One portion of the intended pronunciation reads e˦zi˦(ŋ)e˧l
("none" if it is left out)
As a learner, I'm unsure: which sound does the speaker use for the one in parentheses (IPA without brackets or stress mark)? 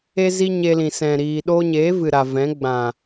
ɲ